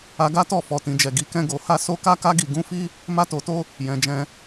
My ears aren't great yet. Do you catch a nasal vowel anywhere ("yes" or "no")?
yes